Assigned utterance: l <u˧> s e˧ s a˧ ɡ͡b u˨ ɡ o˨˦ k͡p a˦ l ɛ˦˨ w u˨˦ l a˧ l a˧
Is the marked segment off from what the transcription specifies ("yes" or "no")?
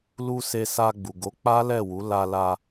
no